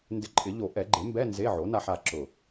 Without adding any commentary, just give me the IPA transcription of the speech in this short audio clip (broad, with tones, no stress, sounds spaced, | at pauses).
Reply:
n d ɪ˧ ǃʼ ɪ˨˩˦ ʎ o˨˩˦ ʔ ɛ˨˩˦ ɡ͡ǃ e˩˥ m b ɛ˧˥˧ n z e˧˥˧ ʕ o˩˥ n a˧ ħ a˧ ǁ ʊ˧˩